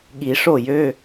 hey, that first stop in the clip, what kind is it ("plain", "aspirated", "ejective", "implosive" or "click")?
implosive